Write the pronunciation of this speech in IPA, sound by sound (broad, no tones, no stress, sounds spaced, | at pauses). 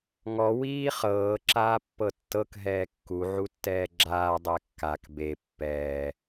ŋ ɔ w iː χ ɤː ǁ aː pː ɤ tː ɤ k ɦ ɛː kː u ʕ u tː ɛː ɡ͡ǁ aː dˤ ɛ kː a k b e pː ɛː